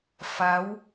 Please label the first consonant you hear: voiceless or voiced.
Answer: voiceless